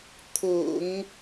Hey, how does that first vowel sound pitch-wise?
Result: low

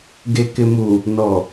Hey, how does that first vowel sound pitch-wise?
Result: low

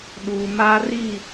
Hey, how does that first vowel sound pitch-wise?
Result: low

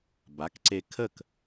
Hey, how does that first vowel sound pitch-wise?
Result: rising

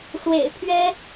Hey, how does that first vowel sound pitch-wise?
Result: low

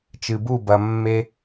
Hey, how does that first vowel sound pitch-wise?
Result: low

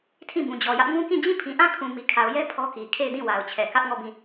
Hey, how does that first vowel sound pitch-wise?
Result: falling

